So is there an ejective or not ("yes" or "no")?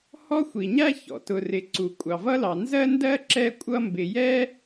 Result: yes